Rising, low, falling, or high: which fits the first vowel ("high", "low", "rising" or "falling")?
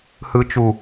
high